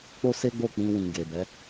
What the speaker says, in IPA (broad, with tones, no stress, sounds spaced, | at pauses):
k͡p o˦ s e˦ ɡ͡b o˦˨ k͡p ĩ˧ w ĩ˨ ɡ e˨ b ɛ˨˦